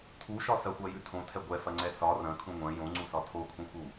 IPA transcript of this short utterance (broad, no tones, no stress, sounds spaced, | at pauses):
tʰ u ʃ ɒ s ɐ xʷ ɜ j ʉ tʰ õ tʰ ɛ ɡʷ ɛ f ɐ ŋ͡ǀ ɛ s ɒ r ɐ̃ kʰ ũ ŋʷ ɐ̃ j õ ŋ͡ǀ u s ɒ tʰ o kʰ ũ x u